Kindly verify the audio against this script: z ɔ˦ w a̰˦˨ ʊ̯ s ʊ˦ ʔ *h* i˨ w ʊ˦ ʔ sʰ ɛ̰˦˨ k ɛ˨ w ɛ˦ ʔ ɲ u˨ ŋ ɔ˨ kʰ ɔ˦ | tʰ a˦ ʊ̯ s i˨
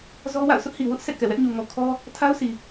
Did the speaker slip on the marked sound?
no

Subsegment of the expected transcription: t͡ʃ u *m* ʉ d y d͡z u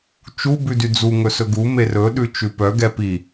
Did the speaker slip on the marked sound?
yes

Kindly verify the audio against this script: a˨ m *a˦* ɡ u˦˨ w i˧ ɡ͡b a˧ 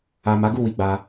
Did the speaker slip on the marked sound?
yes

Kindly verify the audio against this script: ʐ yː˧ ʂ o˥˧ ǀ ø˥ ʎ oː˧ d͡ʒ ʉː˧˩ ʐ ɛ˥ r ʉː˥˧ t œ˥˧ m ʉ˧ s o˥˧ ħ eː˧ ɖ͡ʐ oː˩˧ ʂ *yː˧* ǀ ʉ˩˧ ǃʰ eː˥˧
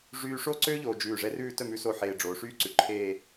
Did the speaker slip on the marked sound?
yes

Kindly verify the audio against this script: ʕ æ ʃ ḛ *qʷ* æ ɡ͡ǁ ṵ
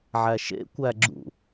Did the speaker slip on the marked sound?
yes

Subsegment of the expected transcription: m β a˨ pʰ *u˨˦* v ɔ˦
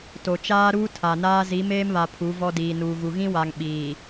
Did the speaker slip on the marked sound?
no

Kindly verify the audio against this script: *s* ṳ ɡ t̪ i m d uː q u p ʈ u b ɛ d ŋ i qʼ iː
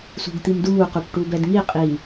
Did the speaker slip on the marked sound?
no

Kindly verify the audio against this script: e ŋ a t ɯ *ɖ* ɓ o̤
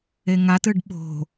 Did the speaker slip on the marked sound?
no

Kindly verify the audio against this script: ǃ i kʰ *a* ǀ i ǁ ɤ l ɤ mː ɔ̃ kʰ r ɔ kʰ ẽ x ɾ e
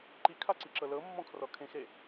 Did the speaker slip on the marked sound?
no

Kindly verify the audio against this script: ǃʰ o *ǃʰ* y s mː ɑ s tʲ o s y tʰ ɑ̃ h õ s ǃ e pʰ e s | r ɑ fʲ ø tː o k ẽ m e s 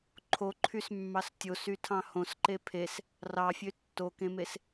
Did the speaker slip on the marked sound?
no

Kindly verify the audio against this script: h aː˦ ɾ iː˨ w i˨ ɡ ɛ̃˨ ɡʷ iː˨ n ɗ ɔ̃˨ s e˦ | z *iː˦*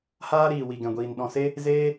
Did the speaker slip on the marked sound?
yes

